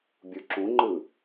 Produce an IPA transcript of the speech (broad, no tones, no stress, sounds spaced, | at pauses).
bʲ u ǁ ũ ŋ͡ǃ ɯ